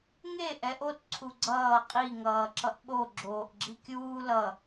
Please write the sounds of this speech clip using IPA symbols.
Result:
ŋ e ʔ ɛ ʔ o t ǀʰ u ɡ͡ǀ ʌː qʼ i ŋ ʌː ǁ ʌ ʔ ɓ o ɡ͡ǁ oː ʔ ɡ͡ǁ i kʲ uː l ʌ

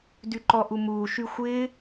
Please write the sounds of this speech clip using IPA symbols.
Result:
d y ǃ ɔ ʔ u m uː ʃ y xʷ ɪː

